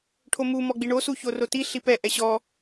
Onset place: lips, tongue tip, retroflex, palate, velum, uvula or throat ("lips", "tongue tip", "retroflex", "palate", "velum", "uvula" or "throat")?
retroflex